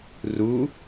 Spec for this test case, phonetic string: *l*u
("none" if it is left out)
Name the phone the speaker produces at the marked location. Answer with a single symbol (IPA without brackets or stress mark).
r